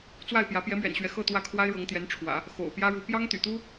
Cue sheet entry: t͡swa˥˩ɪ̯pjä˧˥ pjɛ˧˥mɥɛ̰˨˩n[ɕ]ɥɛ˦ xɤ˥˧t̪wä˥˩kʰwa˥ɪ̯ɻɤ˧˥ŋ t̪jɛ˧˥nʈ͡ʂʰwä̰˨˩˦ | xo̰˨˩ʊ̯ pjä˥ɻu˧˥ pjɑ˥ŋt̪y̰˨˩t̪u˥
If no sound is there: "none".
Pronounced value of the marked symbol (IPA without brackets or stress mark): ɕ